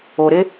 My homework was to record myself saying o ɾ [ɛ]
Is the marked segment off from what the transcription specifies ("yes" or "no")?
yes